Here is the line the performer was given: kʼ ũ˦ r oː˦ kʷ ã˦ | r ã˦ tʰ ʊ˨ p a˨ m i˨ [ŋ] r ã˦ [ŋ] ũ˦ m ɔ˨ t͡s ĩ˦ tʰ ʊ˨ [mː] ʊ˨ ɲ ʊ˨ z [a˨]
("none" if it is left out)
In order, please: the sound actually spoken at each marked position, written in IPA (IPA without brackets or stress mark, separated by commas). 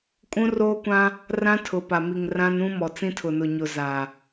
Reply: ŋ, n, n, a˨